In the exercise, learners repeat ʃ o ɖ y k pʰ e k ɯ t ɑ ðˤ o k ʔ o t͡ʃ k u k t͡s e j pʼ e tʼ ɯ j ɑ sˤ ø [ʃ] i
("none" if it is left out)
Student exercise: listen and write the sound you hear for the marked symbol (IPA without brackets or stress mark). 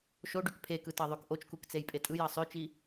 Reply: t͡ʃ